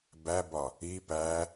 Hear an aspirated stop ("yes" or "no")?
no